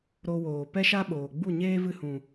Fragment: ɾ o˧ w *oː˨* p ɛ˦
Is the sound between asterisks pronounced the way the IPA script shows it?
yes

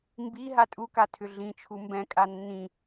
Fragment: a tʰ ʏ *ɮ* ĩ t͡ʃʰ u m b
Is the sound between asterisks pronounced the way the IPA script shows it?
yes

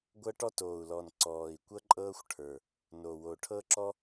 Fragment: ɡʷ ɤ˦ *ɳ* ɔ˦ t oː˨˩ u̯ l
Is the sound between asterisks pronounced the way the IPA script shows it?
no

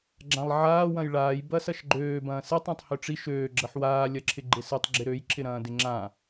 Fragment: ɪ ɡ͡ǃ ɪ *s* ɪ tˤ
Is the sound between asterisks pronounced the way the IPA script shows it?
yes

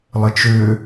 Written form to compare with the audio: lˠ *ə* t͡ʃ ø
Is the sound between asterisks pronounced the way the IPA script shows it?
yes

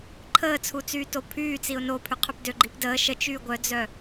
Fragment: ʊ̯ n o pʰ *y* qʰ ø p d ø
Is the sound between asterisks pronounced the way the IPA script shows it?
yes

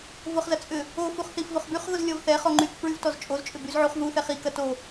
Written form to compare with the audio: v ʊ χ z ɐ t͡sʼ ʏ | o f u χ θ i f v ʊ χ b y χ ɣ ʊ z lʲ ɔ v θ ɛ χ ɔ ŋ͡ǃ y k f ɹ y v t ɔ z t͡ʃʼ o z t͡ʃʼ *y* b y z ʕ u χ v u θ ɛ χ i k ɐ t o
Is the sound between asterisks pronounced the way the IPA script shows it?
no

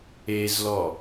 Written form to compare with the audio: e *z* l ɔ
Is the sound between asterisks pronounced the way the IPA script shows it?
yes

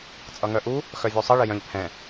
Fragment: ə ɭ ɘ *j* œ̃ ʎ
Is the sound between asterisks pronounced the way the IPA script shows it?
yes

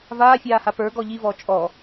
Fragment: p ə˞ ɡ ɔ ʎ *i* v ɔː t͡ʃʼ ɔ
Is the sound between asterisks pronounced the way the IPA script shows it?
yes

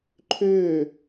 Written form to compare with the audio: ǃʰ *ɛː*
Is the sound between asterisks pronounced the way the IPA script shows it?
no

